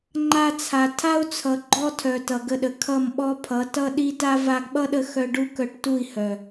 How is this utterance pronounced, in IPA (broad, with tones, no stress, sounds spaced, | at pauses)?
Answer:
ŋ͡ǃ a˧ t͡sʰ a˨ tʰ a˦ u̯ t͡sʰ ʌ˨ ɡ͡ǃ ɔ˦ tʰ œ˨ t ʌ˨ ɡ ə˧ ɗ ə˨ kʰ ʌ˦˨ m ɓ ɔ˦ pʰ ʌ˨˦ t ʌ˦ ɗ i˦ t a˦ v a˧ ɡ ɓ ʌ˦ ɗ ə˧ x œ˧ ɖ u˦ k œ˧ ʈ t u˦˨ i̯ h œ˨